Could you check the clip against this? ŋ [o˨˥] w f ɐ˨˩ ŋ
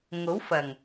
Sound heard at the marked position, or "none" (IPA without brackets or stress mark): o˨˥